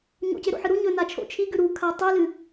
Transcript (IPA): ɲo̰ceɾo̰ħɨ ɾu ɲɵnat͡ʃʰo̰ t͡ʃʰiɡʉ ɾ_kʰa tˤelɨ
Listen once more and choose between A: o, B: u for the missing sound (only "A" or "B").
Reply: B